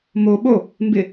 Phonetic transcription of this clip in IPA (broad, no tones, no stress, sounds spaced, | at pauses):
m o ɓ o | m b ɪ